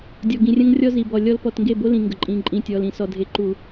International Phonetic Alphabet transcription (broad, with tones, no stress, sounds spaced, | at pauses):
dʲ ɔ˨ ɡ ĩ˨ rʲ ə̃˦ ŋ rʲ ɔ˦ z i˨ b ɔ˨ lʲ ɔ˦ l p ɔ˨ t ŋ ɡ e˦˨ b o˦ l ĩ˨ ŋ ɡ ə˨ ǃʼ ĩ˨ ǃʼ ĩ˨ tʲ ɔ˨ l ĩ˨ s ɔ˨ dʱ e˨ ǃ u˨